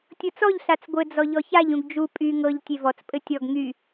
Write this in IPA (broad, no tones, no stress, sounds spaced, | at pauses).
tʲ ɤ t͡s ɔ ʎ ɬ a t͡s ɡʷ ɘ d͡z ɔ ʎ ɔ ç a ʎ ũ ɡ d͡ʒ u pʼ y ŋ ɤ ʎ tʲ e v ɔ t͡s pʼ ɘ tʲ ɔ ɡ ŋ y